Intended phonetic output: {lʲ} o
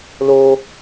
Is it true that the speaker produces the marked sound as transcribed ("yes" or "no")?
no